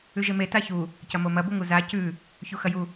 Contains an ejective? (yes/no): no